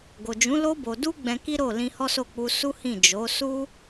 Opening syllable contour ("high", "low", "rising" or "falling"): low